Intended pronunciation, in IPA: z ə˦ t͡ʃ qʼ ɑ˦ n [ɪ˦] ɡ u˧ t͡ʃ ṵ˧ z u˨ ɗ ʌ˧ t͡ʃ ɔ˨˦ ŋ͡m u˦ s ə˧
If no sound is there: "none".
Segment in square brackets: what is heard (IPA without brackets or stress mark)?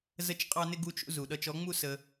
ɪ˦